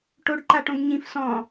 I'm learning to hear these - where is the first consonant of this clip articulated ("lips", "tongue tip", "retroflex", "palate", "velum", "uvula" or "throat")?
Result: retroflex